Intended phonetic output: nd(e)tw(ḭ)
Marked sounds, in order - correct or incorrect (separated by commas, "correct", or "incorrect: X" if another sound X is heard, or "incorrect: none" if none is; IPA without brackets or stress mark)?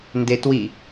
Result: correct, incorrect: i